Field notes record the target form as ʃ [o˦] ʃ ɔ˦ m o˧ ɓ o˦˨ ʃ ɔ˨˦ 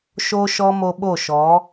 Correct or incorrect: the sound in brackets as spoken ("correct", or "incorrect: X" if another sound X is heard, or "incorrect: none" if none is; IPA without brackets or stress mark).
correct